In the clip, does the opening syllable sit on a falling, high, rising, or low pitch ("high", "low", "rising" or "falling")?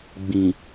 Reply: low